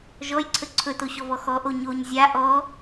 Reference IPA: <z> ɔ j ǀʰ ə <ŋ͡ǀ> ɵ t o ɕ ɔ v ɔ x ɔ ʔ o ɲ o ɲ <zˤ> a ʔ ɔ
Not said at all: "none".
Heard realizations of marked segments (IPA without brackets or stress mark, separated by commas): ʒ, ǀʰ, zʲ